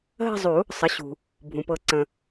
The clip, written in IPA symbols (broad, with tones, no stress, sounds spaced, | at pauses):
ɦ ə̤˥˧ zˤ u˨˩˦ | sˤ ə˩˥ ɕ ṳ˩ | bʱ ũ˩ p ɤ˨˩˦ ǀ ə̃˩